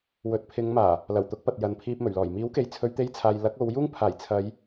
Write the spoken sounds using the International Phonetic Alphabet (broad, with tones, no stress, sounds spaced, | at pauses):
w ɵ˨˥ t̚ pʰ ɪ˨˧ ŋ m aː˨˩ | l ɐ˨˩ w t̪ ʊ˨˥ k̚ p ɐ˨ t̚ j ɐ˨ n pʰ iː˧ p̚ m ɵ˨˩ ɥ l ɔː˨˩ j m iː˨˥ w k e˨ j t͡sʰ ɵ˨˧ ɥ t̪ e˧ j t͡sʰ aː˨ j l ɐ˨˥ k̚ o˨˧ w j uː˥ ŋ pʰ aː˨˩ j t͡sʰ ɐ˨˧ j